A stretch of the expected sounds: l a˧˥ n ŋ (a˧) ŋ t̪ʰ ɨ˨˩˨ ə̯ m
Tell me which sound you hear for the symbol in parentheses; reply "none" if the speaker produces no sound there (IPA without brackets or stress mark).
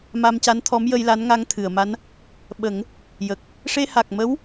a˧